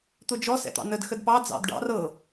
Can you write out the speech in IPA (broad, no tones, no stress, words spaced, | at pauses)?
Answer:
t̪ʊd͡ʒɔ sɛ̰t̪ɑ̰nəd xədpɑ d͡zɑ̰dɖɑ̰r ɤ